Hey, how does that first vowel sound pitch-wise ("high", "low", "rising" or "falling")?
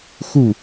falling